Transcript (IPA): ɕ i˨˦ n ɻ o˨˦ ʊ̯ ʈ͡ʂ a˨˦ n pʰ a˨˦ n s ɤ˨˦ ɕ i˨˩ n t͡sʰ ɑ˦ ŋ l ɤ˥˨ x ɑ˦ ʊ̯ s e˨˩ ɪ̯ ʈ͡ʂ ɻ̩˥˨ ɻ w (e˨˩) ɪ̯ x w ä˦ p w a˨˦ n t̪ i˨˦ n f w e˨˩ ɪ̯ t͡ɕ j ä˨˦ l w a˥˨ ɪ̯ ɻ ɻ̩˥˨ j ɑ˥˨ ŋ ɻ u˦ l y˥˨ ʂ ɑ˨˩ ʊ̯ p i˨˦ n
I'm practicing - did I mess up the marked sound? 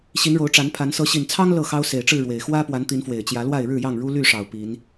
no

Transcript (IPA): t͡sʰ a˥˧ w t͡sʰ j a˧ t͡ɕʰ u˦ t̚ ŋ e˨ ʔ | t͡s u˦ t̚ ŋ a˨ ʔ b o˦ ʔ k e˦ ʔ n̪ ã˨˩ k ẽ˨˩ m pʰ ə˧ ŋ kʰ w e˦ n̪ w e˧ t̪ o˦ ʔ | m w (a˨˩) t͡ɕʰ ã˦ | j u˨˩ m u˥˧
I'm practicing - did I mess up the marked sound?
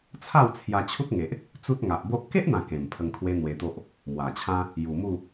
no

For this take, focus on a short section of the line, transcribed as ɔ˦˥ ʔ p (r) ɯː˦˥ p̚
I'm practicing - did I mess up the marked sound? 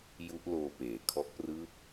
no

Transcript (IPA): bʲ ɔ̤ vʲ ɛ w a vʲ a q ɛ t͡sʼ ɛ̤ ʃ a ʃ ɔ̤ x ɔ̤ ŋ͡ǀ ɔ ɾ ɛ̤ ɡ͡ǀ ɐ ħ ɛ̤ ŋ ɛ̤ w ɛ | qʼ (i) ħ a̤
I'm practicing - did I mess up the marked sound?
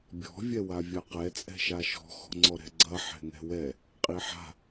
no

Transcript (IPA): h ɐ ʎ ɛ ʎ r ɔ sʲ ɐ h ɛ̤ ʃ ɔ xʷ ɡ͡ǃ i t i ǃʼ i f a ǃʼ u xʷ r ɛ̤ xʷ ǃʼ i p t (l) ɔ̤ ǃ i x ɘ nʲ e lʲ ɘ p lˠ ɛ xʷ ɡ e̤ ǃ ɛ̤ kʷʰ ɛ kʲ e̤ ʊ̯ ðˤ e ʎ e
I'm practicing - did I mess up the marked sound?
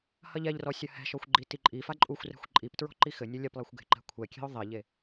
yes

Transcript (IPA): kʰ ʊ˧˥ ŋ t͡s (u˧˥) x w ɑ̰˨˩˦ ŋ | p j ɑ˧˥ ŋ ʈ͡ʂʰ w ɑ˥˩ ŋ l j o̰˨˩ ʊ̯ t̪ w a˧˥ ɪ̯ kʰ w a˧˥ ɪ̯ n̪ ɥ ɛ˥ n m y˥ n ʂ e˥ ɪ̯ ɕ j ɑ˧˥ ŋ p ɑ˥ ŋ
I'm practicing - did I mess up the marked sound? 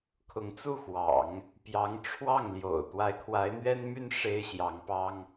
yes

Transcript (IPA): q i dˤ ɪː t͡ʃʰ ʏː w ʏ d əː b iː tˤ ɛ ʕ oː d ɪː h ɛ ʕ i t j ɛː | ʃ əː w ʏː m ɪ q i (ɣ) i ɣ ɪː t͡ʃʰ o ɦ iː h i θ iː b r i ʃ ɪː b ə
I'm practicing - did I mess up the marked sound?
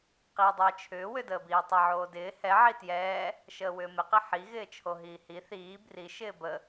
yes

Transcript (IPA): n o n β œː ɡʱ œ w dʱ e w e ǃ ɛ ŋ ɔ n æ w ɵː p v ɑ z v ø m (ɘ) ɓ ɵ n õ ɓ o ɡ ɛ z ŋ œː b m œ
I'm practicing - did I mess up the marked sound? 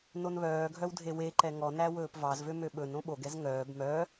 yes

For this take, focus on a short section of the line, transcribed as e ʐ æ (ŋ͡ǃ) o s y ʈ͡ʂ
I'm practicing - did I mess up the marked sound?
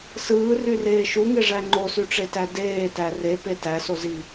no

